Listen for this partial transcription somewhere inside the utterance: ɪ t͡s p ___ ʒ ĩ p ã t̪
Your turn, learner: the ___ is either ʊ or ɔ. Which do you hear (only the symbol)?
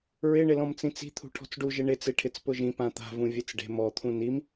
ʊ